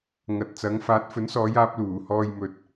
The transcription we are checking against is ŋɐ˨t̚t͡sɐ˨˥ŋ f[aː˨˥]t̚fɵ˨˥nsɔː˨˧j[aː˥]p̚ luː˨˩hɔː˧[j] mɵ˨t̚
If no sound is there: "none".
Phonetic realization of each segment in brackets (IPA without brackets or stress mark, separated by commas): aː˨˥, aː˧, j